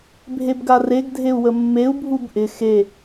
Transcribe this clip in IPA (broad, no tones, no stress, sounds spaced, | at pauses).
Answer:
bʱ e b ɡ a r e ɡ dʱ e u̯ w ə mː e u̯ bʱ u b ʔ ɪ x e